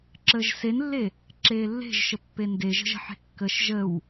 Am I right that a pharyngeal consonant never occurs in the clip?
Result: no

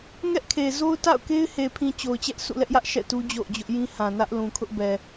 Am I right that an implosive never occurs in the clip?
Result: yes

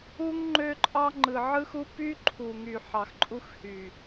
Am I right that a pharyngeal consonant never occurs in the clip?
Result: no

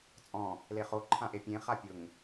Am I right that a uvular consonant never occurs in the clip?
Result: no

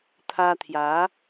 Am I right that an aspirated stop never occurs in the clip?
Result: no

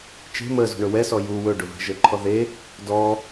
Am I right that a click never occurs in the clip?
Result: no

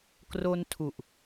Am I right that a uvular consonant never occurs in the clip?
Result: yes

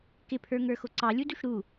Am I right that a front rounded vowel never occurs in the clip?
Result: yes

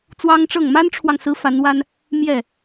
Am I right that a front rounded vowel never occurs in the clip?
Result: yes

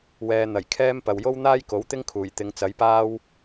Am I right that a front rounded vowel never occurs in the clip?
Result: yes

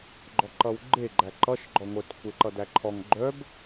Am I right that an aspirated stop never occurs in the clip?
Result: no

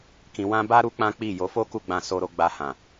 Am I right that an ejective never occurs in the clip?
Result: yes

